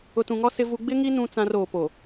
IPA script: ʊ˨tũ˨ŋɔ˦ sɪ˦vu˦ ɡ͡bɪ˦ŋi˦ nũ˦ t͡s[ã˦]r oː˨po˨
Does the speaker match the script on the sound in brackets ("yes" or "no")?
yes